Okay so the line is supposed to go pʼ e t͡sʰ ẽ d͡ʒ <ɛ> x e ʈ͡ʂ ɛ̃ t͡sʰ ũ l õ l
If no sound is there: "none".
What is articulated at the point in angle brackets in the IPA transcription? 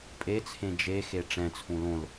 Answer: e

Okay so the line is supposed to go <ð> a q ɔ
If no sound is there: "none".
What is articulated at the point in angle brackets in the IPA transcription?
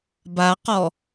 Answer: b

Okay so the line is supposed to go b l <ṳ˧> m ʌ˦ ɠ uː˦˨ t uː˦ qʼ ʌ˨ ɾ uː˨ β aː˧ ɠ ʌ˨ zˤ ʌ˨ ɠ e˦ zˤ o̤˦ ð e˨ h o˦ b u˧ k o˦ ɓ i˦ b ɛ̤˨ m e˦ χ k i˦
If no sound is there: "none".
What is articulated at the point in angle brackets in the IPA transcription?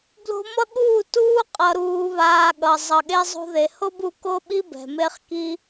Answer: o̤˧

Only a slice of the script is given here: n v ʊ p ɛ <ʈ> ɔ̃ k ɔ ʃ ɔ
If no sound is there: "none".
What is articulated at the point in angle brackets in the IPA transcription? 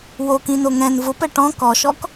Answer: ʈ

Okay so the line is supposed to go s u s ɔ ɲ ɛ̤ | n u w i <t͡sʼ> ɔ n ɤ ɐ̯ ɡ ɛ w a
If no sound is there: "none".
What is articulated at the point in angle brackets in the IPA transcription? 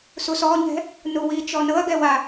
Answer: t͡ʃ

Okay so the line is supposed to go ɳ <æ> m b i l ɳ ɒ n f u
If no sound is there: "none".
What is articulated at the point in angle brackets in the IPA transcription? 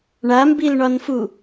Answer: a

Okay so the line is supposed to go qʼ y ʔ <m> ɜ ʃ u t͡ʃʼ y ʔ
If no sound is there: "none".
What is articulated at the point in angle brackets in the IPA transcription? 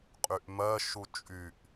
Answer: m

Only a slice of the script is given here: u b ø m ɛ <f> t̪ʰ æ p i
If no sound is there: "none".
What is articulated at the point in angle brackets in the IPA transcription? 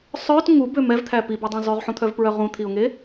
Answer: v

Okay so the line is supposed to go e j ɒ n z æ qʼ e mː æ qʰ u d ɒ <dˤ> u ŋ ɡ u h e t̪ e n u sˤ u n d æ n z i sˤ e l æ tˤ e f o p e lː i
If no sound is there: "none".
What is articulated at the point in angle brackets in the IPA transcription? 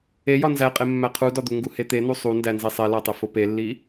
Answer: d̪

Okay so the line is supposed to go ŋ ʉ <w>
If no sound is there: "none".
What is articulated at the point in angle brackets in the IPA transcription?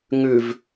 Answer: v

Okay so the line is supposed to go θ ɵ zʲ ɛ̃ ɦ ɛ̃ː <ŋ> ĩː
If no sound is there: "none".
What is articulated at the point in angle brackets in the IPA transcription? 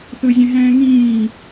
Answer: ŋ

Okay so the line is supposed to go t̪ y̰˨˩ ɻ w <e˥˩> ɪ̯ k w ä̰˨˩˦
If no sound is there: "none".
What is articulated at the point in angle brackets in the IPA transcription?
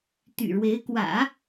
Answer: e˧˥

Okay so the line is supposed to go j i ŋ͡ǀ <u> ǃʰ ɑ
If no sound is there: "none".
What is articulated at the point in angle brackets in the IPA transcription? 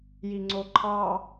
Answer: o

